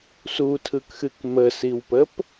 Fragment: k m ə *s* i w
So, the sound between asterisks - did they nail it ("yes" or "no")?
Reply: yes